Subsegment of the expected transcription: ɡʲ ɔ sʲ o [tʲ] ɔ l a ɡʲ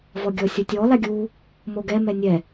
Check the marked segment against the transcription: correct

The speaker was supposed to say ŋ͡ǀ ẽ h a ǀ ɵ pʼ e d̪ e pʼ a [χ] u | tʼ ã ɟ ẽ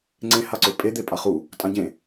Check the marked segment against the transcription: correct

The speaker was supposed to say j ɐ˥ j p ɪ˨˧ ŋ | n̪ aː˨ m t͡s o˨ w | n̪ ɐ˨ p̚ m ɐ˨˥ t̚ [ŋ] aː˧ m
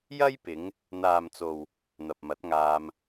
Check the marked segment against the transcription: correct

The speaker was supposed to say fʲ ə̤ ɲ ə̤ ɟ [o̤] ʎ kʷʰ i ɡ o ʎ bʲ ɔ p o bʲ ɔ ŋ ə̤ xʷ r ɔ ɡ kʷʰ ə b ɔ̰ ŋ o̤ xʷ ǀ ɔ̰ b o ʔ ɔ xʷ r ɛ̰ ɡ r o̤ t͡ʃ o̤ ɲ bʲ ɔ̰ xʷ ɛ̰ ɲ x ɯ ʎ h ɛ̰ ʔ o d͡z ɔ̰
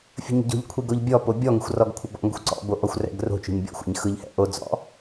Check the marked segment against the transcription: correct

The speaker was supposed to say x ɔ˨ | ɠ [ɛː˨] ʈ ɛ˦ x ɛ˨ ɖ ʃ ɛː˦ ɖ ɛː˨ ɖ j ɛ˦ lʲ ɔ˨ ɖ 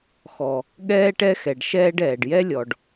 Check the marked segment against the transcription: incorrect: ɛː˦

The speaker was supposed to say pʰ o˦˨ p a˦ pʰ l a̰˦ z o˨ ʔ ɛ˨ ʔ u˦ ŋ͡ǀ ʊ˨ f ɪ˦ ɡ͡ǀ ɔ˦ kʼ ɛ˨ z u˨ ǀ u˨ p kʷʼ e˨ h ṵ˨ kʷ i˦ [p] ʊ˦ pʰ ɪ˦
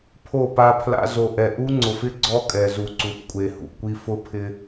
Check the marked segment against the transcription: incorrect: f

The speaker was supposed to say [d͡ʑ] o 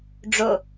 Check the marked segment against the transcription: incorrect: ɖ͡ʐ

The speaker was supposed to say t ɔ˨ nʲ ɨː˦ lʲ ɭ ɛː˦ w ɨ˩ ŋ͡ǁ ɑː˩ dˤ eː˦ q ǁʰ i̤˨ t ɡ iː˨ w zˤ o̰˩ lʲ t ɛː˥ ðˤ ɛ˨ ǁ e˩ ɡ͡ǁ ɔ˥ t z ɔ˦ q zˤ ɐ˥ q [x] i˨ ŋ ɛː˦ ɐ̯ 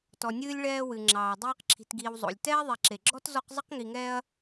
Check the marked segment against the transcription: incorrect: ŋ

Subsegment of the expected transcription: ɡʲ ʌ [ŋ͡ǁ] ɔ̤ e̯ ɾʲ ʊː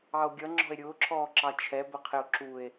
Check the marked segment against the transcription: correct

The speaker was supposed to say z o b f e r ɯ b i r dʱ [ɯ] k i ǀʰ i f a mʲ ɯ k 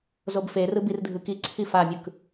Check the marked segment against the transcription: correct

